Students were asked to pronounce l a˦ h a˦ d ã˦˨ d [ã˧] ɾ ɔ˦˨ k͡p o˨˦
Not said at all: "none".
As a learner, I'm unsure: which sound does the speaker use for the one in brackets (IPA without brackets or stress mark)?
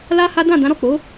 ã˨˦